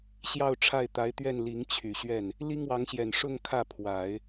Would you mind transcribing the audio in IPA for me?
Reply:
ɕ j ɑ˥˧ ʊ̯ ʈ͡ʂʰ a˥˩ ɪ̯ t̪ a˧˥ ɪ̯ t̪ ɥ ɛ˥˩ n l i˧˥ ŋ t͡ɕʰ y˨˩ ɕ ɥ ɛ˥˩ n | l i˥ ŋ w ɑ˧˥ ŋ ɕ j ɛ˨˩ n ʂ ʊ˥˧ ŋ kʰ ä˥˩ pʰ w a˨˩˦ ɪ̯

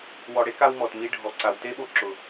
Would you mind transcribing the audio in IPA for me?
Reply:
w ɔ˨ ɽ e˦ k a˧ w m ɔ˨ t m i˧ ɖʱ ɔ˨ ǀ a˨ w t e˦ ɓ o˧ ǁ ʊ˨

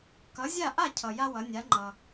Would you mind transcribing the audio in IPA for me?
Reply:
k ʌ˩˥ zʲ a˥˩ ʔ a˥˩ cʰ ʌ˩ j a˥ w ʌ˩˥ nʲ a˩˥ ŋ͡ǃ ʌ˩

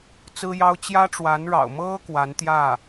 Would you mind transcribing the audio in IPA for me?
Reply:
t͡s ɹ̩˥ j ɑ˥ ʊ̯ t͡ɕ j ä˥ ʈ͡ʂ w a˧˥ n ɻ ɑ̰˨˩ ʊ̯ m ɤ˥ k w a˧˥ n t̪ j ä˥˩

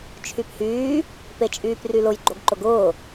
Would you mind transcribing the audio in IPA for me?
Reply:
t͡ʃʰ y p h yː | p e t͡ʃʼ yː p r y l ʊ j ɡ͡ǃ o ɡ ǃ ʊ ɡ ʊː

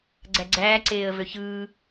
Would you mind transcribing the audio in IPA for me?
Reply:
ɡ͡ǀ æ ɡ͡ǀ æː ǀ eː ə̯ v ø ç ɯː

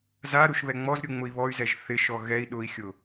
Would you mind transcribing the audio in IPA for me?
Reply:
z a ɾ u ʃ β ɛ ŋ͡m ɔ z ɾʲ u ŋ͡m ʊ i̯ β ɔ y̯ z ɛ ʒ θ ɪ ʃ ɔ ɣ ɛ i̯ ɗ ʊ i̯ xʲ ʊ

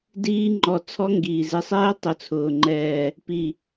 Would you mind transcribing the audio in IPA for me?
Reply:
d iː˦˥ ŋ͡ǃ ɔ˧˩ t͡sʰ ɔ˦˥ ŋ ɡ iː˩ z ɪ˧˩ sˤ ɛː˦˥ tˤ ʊ˧˩ t͡sʰ ʊː˩ ŋ͡ǃ ɛː˧˩ | p i˧˩

